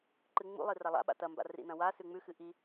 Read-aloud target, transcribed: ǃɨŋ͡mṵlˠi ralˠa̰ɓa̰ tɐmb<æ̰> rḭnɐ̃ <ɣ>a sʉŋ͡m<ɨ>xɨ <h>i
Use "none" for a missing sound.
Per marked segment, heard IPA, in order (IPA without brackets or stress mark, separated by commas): a̰, w, ʉ, ʔ